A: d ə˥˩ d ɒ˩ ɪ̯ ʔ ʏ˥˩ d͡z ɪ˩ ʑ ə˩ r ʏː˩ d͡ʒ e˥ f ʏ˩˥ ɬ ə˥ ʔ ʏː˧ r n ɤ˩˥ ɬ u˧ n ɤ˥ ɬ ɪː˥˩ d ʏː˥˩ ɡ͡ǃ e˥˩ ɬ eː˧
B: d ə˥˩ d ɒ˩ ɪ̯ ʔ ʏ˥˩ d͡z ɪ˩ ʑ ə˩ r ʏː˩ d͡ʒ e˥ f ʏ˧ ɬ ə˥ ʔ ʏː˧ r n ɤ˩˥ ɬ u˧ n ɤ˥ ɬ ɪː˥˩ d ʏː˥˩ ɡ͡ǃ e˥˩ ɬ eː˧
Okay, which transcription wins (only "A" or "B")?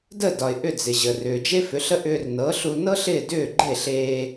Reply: A